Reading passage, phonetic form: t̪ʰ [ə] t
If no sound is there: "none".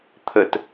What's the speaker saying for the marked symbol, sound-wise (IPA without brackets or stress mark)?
ə